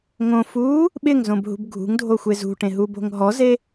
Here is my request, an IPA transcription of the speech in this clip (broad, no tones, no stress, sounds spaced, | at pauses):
ŋ õ f uː | ɓ ɪ ŋ z õ b ɦ ṳ b ɡʱ ṳ ŋ dʱ o xʷ e z ṳ ʈ ẽ ɦ u b o̤ ŋ ɦ ɔ z e